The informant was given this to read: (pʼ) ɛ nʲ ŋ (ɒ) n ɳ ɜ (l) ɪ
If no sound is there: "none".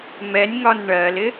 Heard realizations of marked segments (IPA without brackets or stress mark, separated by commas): m, ɒ, l